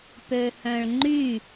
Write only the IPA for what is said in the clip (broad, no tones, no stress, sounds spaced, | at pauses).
p ø h œ̃ ɭ ŋ͡ǃ y